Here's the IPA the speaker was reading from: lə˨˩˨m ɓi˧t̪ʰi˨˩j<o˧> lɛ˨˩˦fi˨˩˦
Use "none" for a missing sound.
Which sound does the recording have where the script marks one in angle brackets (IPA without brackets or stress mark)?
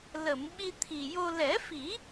o˧